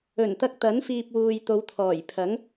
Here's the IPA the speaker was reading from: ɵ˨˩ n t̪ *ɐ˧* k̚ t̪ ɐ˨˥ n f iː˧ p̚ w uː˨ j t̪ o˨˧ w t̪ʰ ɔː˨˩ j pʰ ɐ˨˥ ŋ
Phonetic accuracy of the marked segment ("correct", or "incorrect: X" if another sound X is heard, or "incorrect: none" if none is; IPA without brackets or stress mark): correct